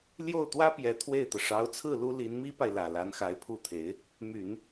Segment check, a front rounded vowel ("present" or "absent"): present